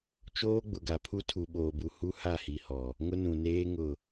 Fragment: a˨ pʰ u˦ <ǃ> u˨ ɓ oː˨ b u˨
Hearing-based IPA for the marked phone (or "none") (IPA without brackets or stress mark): tʰ